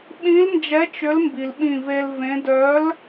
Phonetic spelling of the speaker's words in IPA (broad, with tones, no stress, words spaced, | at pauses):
ɓĩ˨˥lnd͡ʒɛ˨˥ t͡ʃʏ˨˥lmbi˩lɓĩ˧˩ ve˧lvẽ˨˥ dœ˨˥l